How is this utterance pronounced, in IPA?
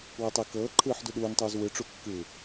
w ɤ tˤ e k ɤː ǃʰ ɯː ħ d u ɗ uː n tˤ uː z w ɯ ʈ͡ʂ u kː ɯ

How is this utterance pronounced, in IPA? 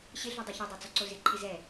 ɕ ɪ ɮ u dˤ u ç o dˤ a t͡s ɔ ǀ o z ɪ ǃʰ ɪ z ɛ

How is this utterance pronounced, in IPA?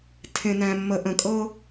tʰ ẽ˩ n æ̃˩ mː ə˩ ʔ ə̃˩ kʼ ɤ˥

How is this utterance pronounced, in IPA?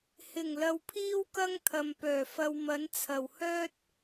h ɪ˨˩ ŋ l ɐ˧ w pʰ iː˥ w k ɐ˥ ŋ t̪ʰ ɐ˨ m p œː˨˩ f ɐ˧ w m ɐ˨˧ n t͡sʰ ɐ˨ w h œː˥ t̚

